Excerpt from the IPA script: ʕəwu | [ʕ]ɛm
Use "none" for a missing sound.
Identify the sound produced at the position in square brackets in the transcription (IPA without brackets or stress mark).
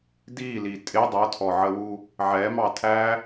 ʕ